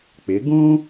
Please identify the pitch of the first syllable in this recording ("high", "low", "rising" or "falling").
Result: rising